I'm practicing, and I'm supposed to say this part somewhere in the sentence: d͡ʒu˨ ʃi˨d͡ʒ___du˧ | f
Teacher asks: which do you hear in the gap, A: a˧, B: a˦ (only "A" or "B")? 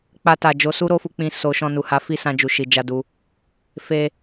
A